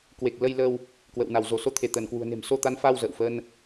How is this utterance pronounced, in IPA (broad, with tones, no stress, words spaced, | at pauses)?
kwe˨˩k̚lə˧jlə˧w | kwə̰˧˨wna˧˩w zo˧˩so˧ t̪ʰe˧˩t̪əː˧˩nkwṳ˨˩ə̯ ne̤˨˩mso˧t̪a˨˦nfa˧w zə̰ː˧˨wfə˧n